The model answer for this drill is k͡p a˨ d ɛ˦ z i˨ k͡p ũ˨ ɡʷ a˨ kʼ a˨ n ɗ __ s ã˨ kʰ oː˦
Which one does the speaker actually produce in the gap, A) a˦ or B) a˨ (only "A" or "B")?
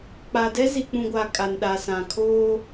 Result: B